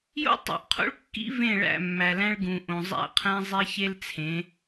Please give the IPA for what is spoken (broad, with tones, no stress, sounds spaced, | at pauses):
j o̰˦ tˤ ṵ˨ ʔ qʰ o̰˦ ɭ kː ḭ˦ v ẽ˦˨ ɭ æ̰˦˨ mː æ˨ l æ̃˦ ɭ ɡ ũ˨ ʔ õ˨ zˤ æ̰˦ qʰ æ̃˦ zˤ e˦ ç e˦ l t͡sʰ ẽ˨˦